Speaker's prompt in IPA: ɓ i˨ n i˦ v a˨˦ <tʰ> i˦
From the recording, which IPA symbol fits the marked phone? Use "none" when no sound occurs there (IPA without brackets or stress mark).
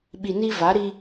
ɾ